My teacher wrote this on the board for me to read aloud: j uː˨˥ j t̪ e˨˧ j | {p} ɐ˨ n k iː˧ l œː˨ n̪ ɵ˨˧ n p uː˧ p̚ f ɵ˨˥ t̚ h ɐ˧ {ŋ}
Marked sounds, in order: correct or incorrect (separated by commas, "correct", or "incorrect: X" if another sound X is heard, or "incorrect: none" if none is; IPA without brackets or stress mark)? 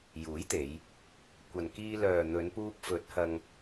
incorrect: kʷ, correct